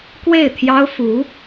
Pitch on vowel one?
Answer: falling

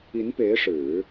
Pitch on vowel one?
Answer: rising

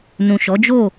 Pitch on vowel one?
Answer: low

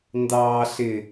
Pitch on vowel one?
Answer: high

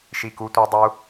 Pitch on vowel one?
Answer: falling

